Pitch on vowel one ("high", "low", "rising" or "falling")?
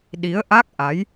rising